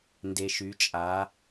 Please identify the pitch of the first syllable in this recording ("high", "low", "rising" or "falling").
low